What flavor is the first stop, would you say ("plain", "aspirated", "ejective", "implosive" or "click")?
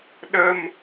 implosive